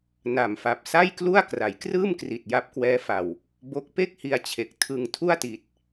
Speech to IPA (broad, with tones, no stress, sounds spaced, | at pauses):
n a˨˩ m f a˨˩ p̚ s a˥˩ j k l u˥˩ a̯ k r a˩˦ j k r ɯː˥˩ m k r i˨˩ t̚ j a˦˥ p̚ k w ɛː˦˥ f a˨˩ w | b o˦˥ k̚ p e˥˩ k̚ h i˧ a̯ t͡ɕʰ e˨˩ k̚ tʰ ɯ˧ ŋ tʰ u˥˩ a̯ t i˨˩ t̚